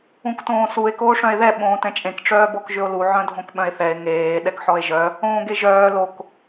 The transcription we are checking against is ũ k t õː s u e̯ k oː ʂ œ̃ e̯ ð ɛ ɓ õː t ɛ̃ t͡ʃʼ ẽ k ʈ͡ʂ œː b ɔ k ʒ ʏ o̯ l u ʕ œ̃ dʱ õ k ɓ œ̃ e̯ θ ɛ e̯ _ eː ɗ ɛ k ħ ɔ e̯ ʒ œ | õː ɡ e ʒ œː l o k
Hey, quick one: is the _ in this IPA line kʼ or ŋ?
ŋ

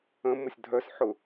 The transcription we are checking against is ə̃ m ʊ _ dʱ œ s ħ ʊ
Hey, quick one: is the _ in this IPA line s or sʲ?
sʲ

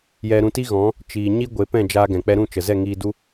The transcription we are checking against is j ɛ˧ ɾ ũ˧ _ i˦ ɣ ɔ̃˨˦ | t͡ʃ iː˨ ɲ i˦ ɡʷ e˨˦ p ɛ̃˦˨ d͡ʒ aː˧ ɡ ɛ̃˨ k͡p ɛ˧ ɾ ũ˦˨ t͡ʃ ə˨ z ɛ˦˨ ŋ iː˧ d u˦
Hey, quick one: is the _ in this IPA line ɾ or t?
t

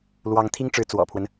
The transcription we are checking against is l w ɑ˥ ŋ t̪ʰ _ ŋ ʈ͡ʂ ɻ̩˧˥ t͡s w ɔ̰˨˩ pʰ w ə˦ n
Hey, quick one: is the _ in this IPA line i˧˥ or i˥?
i˥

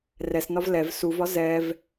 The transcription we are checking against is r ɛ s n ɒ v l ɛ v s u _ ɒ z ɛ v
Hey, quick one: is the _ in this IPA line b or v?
v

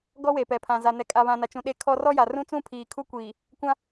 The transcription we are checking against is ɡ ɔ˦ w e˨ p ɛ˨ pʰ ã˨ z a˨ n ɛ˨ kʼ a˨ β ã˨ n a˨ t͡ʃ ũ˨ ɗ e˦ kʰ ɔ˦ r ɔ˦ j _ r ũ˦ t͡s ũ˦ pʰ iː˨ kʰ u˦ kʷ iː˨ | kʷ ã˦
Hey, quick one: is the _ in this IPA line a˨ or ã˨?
a˨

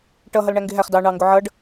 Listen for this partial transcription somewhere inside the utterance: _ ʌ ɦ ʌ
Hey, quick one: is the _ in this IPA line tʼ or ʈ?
ʈ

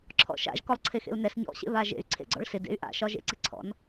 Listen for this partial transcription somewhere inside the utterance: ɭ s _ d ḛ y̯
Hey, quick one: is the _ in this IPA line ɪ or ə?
ɪ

